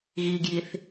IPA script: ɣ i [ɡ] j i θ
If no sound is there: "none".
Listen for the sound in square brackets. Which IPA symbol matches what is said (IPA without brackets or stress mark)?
ɡ